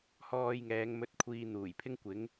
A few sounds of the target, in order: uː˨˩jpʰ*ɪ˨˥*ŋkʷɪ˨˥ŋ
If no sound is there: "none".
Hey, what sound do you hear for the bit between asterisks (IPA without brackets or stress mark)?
ɪ˥